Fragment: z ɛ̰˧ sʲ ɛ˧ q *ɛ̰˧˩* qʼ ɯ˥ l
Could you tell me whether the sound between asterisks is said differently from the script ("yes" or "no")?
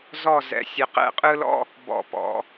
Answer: yes